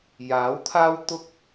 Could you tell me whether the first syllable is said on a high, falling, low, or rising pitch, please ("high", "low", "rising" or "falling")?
rising